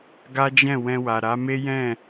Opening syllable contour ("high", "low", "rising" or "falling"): high